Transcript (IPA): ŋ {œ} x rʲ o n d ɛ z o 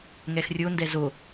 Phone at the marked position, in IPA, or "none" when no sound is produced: ɛ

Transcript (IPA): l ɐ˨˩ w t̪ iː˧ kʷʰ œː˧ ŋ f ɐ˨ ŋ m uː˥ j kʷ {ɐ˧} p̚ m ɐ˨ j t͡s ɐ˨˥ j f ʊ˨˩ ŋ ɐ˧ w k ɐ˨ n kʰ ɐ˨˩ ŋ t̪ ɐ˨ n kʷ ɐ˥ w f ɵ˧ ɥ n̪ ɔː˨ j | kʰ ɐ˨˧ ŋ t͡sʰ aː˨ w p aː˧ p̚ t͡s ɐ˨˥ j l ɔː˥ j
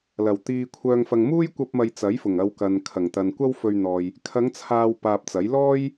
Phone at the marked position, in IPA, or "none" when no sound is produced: ɐ˧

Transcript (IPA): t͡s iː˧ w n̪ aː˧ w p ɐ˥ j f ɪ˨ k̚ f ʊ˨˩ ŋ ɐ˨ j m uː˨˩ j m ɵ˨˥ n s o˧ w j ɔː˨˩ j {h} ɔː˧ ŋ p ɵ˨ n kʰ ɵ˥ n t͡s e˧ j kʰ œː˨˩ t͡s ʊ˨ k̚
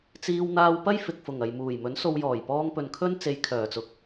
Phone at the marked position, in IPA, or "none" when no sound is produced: p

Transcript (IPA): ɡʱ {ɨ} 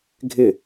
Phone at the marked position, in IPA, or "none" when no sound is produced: ɪ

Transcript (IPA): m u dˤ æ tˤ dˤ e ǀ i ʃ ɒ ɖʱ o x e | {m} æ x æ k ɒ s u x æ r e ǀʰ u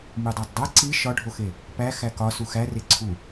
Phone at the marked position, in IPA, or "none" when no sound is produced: p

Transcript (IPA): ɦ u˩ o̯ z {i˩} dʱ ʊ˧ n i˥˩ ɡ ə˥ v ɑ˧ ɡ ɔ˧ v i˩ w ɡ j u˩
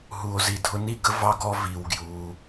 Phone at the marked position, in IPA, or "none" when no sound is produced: i˩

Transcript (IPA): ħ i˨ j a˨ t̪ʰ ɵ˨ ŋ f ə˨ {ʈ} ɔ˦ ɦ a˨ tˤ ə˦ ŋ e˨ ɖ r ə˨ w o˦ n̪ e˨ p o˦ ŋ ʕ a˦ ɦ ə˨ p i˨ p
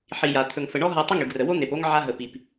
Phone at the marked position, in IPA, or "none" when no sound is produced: ɳ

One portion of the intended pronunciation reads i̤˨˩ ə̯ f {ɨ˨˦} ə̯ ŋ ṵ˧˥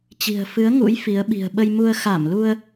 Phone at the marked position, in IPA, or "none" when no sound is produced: ɨ˨˦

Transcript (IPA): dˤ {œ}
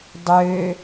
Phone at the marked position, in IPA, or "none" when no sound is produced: ø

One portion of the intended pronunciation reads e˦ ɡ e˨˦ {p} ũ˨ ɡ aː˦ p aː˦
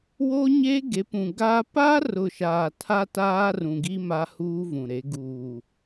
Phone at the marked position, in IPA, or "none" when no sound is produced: p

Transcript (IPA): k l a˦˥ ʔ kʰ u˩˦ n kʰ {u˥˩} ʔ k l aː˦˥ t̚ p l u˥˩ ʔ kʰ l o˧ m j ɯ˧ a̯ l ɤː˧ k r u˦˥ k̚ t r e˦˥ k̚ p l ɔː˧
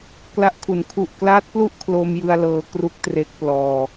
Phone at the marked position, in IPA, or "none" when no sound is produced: u˨˩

